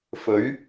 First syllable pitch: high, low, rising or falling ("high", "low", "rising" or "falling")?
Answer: rising